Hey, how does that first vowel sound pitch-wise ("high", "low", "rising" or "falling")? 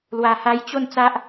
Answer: low